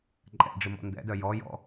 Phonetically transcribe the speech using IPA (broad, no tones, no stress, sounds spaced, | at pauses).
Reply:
ǃʼ ɛ̰ ɖ͡ʐ ɪ m ɔ̰ n d ɛ̰ d œ j ɔ j ɔ̰